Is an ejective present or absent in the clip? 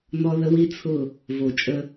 present